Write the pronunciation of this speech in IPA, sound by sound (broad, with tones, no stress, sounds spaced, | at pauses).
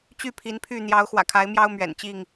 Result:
t͡ɕ y˥˨ pʰ i˨˦ n pʰ y˥˨ n̪ j ɑ˨˦ ʊ̯ x w ä̰˨˩ kʰ a˨˦ ɪ̯ m j ɑ˦ ʊ̯ m ɥ ɛ̰˨˩ n t͡ɕ i˥˨ ŋ